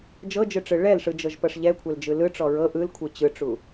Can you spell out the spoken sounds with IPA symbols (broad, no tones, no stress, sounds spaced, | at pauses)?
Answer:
d͡ʒ ɤ d͡ʒ ɯ ʈ͡ʂ ɯ ɭ ɛ l ʂ ɯ d͡ʒ ɤ ʒ p ɤ ʂ ʎ ɛ kʷʰ ɛ l d͡ʒ ɯ l ɯ ʈ͡ʂ ɔ ɹ ɤ ʔ ɯ l kʷʰ ɯ t͡ɕ ɯ ʈ͡ʂ u